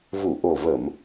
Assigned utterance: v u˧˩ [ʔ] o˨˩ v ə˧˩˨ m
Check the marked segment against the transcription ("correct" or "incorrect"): correct